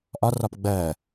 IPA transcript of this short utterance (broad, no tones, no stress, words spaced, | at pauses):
ʔɒrɒp ɡ͡bɜ